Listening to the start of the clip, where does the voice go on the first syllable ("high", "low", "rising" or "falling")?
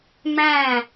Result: falling